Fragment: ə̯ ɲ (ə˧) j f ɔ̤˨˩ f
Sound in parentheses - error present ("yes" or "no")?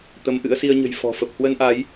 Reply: yes